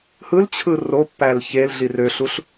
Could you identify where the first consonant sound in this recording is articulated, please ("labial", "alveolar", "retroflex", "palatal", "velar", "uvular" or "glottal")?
glottal